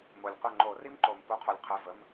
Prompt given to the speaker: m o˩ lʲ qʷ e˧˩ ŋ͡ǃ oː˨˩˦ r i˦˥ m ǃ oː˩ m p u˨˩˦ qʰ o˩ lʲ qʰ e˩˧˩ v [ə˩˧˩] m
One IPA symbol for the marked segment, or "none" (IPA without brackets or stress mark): ə˩˧˩